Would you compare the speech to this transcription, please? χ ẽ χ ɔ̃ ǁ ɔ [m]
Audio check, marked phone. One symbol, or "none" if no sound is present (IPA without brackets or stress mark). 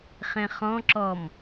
m